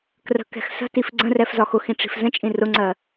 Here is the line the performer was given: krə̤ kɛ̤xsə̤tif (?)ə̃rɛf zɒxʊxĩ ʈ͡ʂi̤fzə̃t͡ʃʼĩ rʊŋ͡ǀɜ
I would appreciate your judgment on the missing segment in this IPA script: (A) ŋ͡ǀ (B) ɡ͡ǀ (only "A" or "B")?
B